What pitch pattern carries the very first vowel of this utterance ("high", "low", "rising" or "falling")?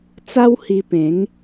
high